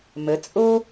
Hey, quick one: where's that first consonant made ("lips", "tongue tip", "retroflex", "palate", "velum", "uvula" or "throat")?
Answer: lips